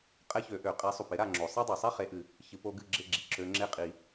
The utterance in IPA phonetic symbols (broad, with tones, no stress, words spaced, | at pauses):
qʼɛ˥çø˨˥ʔø˨˩˦ qʼe˨˥sˤu˨˩pɪ˨˥ ɾa˥˨ŋ͡ǁo˨˩˦ sˤa˥dˤo˨˩sˤi˥ χe˨˥ʔɨ˨˩˦ | çɨ˨˩˦po˨˥ ɡɨ˥˨ɡ͡ǁɪ˥˨ɡ͡ǁi˨˩ ǁø˨˥ŋ͡ǁe˥˨qʼi˨˩˦